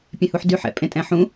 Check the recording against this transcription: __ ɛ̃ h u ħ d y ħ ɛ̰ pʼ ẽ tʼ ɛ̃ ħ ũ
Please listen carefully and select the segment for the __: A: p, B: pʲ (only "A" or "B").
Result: B